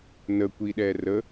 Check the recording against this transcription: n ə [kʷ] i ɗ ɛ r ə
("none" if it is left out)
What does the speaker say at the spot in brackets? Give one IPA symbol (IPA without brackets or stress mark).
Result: kʷ